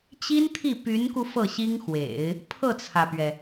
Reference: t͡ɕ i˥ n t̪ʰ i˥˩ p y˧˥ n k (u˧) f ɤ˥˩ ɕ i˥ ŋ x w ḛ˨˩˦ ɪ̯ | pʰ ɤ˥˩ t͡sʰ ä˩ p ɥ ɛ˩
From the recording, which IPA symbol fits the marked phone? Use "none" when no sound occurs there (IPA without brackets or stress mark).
u˧